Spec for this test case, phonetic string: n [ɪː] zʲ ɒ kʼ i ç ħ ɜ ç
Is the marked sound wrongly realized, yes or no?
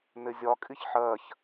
yes